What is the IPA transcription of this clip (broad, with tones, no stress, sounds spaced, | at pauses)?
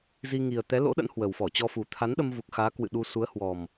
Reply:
z i˧ ŋ i˨˩ ə̯ t̪ ɛ˨˦ l o̰˧˥ ɗ ə̰˧˥ n h w ə˨˩ w f ɔ˧˩ t͡ɕ ɔ˧ f u˨˩ t̪ʰ a˨˦ n ɗ ə˧ m v u˨˩ k̚ x aː˨˦ k w ɨ̰˧˨ ɗ u˧ s u˨˦ ə̯ h w ɔ˨˩ m